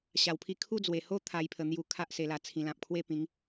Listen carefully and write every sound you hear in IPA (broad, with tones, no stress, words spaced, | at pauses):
ɕa˨˩wpʰi˧ kʰu˥˧ d͡zwe˨˩ho˦ t̪ʰa˥˧jpʰə˧n̪ju˥˧ kʰa˦ʔ se˧la˧ t͡sʰĩ˧ lã˨p̚kʰwe˦pĩ˨˦ŋ